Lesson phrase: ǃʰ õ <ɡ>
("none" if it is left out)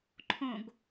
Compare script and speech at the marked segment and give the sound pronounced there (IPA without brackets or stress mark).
ɡ